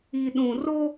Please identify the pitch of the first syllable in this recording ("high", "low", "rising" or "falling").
low